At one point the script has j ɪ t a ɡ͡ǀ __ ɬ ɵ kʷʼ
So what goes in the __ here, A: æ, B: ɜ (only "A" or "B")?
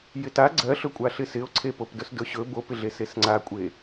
B